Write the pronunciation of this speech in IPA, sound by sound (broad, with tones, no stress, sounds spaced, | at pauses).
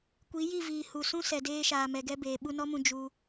kʷ i˨˦ j i˦˨ v iː˨ h u˨ s ũ˦ s ɛ˨ d eː˧ ʃ aː˨ m ɛ˨ ɡ ɛ˧ b eː˨ ɓ u˧ n ɔ˦ m ũ˧ d͡ʒ u˧